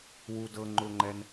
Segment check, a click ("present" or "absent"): present